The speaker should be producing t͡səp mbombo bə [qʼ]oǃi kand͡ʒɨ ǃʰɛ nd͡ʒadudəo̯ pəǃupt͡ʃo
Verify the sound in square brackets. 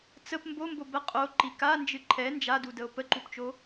correct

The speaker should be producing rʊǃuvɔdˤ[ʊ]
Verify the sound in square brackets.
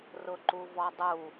incorrect: u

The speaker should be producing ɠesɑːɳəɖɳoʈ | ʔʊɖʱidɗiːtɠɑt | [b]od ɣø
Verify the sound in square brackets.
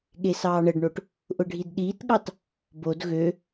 correct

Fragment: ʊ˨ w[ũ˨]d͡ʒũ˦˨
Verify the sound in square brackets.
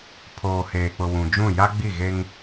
correct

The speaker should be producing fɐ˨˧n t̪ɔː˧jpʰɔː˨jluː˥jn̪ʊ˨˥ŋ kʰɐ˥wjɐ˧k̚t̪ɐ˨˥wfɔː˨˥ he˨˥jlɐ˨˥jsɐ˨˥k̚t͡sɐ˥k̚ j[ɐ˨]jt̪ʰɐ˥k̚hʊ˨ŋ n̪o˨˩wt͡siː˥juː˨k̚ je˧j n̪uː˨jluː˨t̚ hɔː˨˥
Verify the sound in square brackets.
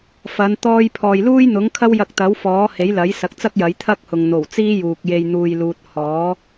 incorrect: ɐ˨˥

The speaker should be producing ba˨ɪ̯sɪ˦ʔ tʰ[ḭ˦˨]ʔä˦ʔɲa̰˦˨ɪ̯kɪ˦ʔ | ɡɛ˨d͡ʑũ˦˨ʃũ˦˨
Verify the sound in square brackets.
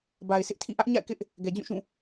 correct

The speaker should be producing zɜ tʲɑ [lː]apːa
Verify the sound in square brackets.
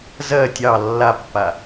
correct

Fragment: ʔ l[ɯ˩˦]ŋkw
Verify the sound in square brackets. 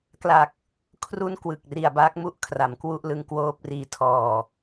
incorrect: ɯ˦˥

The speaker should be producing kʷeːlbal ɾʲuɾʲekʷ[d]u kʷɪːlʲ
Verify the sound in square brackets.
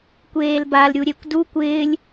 correct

